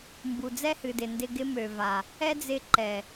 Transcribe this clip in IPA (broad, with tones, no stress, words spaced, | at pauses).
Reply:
mbu˨d͡zɛ˦hɨ˨dɪ˨ ndɪ˧ɡɪ˦ mø˨ va˨ | ɛ˦d͡zɪ˧ ǃɛ˨